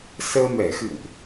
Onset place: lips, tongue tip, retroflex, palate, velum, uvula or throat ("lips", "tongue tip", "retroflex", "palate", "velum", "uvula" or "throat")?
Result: tongue tip